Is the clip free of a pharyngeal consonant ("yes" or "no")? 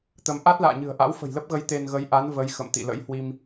yes